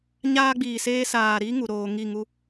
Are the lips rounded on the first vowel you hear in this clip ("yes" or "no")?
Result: no